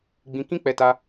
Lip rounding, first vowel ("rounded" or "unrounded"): unrounded